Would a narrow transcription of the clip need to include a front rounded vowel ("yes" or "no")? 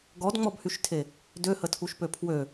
yes